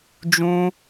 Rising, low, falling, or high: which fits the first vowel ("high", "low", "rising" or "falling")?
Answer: high